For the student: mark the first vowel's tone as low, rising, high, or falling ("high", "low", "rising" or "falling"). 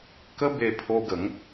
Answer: high